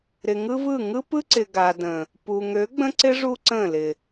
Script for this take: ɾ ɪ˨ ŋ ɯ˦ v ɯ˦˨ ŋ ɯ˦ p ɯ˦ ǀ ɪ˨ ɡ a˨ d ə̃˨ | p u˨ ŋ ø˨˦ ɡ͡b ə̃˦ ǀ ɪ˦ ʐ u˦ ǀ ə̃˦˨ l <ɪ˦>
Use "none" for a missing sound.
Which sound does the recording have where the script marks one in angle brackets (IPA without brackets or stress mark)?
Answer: ɪ˨